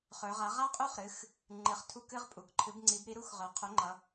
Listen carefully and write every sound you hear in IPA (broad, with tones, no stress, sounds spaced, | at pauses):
χ ɵ˩˧ ʁ a˩˥ ʁ a˦˥ qʼ u˦˥ χ ɾ ɨ˩˧˩ x | ŋ͡ǃ ɨ˩˧˩ χ tʰ u˦˨ k ɨ˦˥ ʁ pʼ u˩˧ k ǃʰ ɨ˩˥ b ŋ͡ǀ i˩˥ b ɾ i˩˥ ɾ u˦˥ x ʁ œ˩˥ qʰ o˩˥ ŋ͡ǃ ʌ˩˧